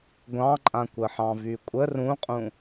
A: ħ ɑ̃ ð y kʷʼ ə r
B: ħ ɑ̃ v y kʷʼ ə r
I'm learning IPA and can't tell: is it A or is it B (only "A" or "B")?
B